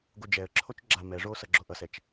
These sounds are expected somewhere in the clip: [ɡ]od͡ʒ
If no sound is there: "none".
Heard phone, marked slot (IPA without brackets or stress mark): ɡ